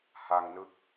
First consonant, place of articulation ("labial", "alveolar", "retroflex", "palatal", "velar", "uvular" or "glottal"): glottal